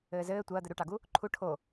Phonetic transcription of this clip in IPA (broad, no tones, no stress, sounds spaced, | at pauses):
ɘː z ɘː tʷ ɐː d̪ ɘ ɾ u ʈ ɑ ɡ u | ǃʰ u ʈʰ o